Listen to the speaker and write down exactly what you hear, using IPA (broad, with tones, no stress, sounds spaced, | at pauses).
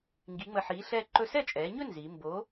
ŋ ɡ i˨˥ ŋ͡m ə˧˩ ħ iː˨˥ ɬ ɛː˥˧ ǃ ɵ˧˩ s ɛ˥˩ t͡ʃʼ ɛː˩˧ ɲ ɵ˥˧ n z i˩˧ m b o˨˥